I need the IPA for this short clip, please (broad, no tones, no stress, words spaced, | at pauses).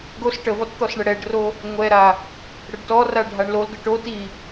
ɡos ʈəvɔt t̪ɔsɳəɽɛɖro | ŋʷɛɾa | ɽəɖtɔra ɖʱaɳlolɡə ʈo ti